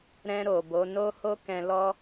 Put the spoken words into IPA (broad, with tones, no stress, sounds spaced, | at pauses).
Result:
ɾ ɛ̃˧ ɾ o˨ b o˨˦ n o˦ h o˦ k ɛ̃˧ l ɔ˦